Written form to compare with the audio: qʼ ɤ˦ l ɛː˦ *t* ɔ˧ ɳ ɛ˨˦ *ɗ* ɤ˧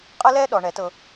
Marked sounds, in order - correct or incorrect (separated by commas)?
incorrect, incorrect